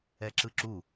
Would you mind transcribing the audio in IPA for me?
ɛ ǁ ɯ ǁ u

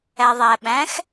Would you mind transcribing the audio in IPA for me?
æ ðˤ æ ɓ æ̃ x

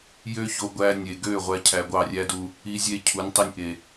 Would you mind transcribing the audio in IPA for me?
j ø˦ ç o˧ ɡʷ æ˧ nʲ e˨ ɡ ø˦˨ ʁʷ æ˦ cʰ æ˧ ɡʷ ɑ˦˨ rʲ æ˦ d u˧ | i˦ zʲ e˦ cʰ u˨˦ nʲ tˤ i˧ nʲ ʔ e˨

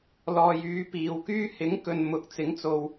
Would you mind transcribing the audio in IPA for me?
l ɔː˨ j yː˨˧ p iː˨ w k yː˥ h ɪ˨˥ ŋ k ɵ˨ n m ʊ˨˥ k̚ t͡s ɪ˨˥ ŋ t͡s o˨ w

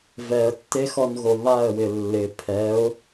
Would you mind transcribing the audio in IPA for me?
v ɛ ə̯ tː e x ɔ n ɣ o β a ə̯ w ɪ lː ɪ pʰ ɛ ʊ̯

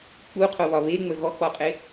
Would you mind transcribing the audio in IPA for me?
k͡p u qʰ o β ɒ β e ŋ͡m ə ɣ ɔ k͡p ɔ qʼ e

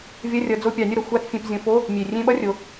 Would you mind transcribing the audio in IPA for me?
vʲ ɐ˧˥˧ rʲ ʌ˨˦ d͡z o˦˨ pʲ ɑ˧˩˧ nʲ ʌ˦˨ ɾ ʌ˨˩ xʷ a˧˥˧ t͡s fʲ ẽ˧˩˧ p zʲ õ˧˩˧ f o˧˥˧ | mʲ e˨˩ rʲ ẽ˧˥˧ ɓ ʌ˥ rʲ o˨˦

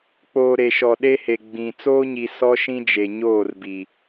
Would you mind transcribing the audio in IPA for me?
k͡p oː˨ ɾ e˨ ʃ ɔ˨ ɗ e˦ h e˨ ɡ͡b ĩ˨ t͡s oː˦ ɲ i˨ s ɔ˦ ʃ ĩ˦ d͡ʒ e˨ ɲ oː˦˨ r b i˨

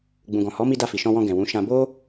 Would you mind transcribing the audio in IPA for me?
ɡ͡b ũ˨ ɡ ɔ̃˨ h ɔ˨˦ m i˧ d a˧ f i˨ ʃ ɔ̃˧ w ɔ̃˧ ɡ ɛ̃˨ w ũ˨˦ ʃ ã˧ b o˦

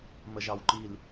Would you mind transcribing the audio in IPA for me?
m ə ʒ ɑ w ǃ i l

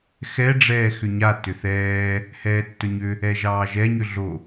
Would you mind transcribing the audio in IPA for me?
x ɛ ɖ͡ʐ ɛː x ʏ ɲ a t ʏ θ ɛː | h ɛː tː ɵ ɲ ʏ | ɛ ʒ ɑː ʒ ɛ ɲ ʏ ɮ o

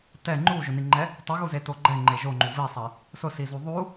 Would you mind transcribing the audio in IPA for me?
t ɛ ŋ͡ǃ u ʒ ʊ n i ŋ͡ǃ ɛ | tˤ i ɣ u z e t o ɡ͡ǃ ɛ ŋ͡ǃ e ʒ o ŋ͡ǃ u v i sˤ e | s ʊ s i z u ðˤ u

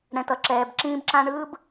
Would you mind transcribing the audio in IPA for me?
ɽ ɛ̃˨ t ʌ˨ ǁ ɛː˨ b ǁ ĩː˦ b ǁ ã˦ ɳ ɯː˦ b

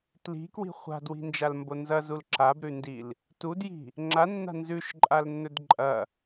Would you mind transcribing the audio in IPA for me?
t l i̤ k w i̤ χʷ a̤ d w i̤ n d͡ʒ a l m b o n z ɐ z u l ǁ a b ɾ ʉ n d i l | t u d j i̤ | ŋ͡ǁ a nː a̤ n z ʉ ʃ ǃʼ a l nː ɵ d ǃʼ ɐ

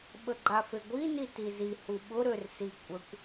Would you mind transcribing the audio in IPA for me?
ɓ ə ɡ͡ǃ a f e ɡʷ i n i t i z i h u ɓ ʊ ɾ ø r s i kʷʼ ə kʷ

